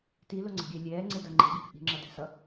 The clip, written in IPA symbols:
t i l o ŋ͡ǀ e̤ ɡʲ ɛː lʲ ɛː ŋ͡ǀ e d ʌ ŋ͡ǃ i̤ ɡʲ ʌ k ʔ i̤ ŋ͡ǁ ʌ d ɛ̤ s ʌ

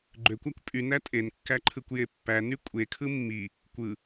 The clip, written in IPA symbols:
ɡ͡ǃ ø kʷ æ kʷ pʼ y n æ tʼ e n kː æ ǃʰ ɯ kʷ j e pː æ n y kʷʼ e kʰ ɯ mː i | kʷ ɯ

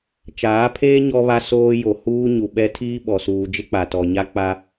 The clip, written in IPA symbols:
t͡ʃ aː˨˦ pʰ eː˦ ɲ ɔ˦ β a˦ s oː˦ j o˨ h uː˦ ɲ u˨ ɓ ɛ˦ tʰ iː˦ ɓ ɔ˨ s uː˨ d͡ʒ ɪ˦ k͡p a˨ t ɔ˨ ɲ a˦ k͡p a˦

